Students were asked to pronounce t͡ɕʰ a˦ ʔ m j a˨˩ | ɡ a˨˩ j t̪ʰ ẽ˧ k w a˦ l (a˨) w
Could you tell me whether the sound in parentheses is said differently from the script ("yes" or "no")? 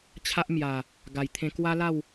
yes